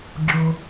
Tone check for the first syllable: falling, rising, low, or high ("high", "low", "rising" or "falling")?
low